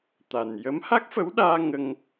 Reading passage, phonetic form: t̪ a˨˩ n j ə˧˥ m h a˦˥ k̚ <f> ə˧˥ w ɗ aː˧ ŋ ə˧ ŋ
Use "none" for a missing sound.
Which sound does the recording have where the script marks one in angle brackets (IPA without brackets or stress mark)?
f